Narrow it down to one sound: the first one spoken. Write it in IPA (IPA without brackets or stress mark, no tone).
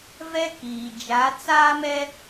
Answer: v